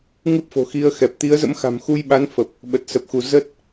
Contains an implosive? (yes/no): yes